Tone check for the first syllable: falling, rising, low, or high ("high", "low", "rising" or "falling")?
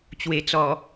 low